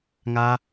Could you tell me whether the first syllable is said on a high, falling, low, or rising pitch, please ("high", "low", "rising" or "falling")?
high